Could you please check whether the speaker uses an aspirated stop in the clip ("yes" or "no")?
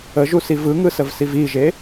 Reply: no